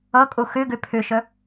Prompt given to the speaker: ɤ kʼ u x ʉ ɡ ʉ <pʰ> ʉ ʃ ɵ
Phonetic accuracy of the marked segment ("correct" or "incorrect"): correct